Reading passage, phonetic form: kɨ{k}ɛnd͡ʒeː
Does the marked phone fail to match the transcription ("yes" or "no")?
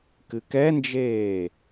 no